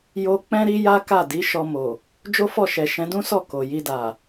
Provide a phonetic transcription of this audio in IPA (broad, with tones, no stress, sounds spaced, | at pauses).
j o˦ k͡p ɛ̃˦ ɾ i˦ j a˦ k a˦˨ d i˨˦ ʃ ɔ˧ m o˨ | d͡ʒ o˦ f ɔ˦˨ ʃ ɛ˨ ʃ ɛ̃˨˦ d ũ˦ s ɔ˦˨ k o˨ j i˧ d a˨